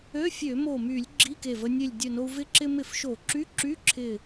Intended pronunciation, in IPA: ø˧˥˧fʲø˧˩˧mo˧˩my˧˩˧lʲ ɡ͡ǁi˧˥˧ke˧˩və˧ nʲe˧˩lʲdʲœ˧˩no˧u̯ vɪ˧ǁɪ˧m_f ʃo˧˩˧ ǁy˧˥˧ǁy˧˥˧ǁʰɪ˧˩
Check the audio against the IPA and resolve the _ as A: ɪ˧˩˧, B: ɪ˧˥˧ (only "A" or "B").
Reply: A